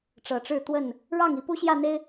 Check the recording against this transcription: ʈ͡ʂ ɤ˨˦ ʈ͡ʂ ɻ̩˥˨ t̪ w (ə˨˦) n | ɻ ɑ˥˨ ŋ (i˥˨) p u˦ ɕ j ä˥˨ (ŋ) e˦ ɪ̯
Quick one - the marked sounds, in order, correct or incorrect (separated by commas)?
incorrect, incorrect, incorrect